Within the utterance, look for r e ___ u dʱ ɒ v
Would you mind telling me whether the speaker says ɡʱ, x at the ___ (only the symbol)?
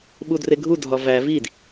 ɡʱ